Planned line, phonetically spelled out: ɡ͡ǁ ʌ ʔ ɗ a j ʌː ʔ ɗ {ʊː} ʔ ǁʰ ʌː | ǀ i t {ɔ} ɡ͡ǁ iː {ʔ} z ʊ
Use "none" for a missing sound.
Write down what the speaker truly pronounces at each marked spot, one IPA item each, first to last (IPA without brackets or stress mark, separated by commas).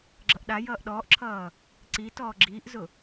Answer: ɔː, ɔː, ʔ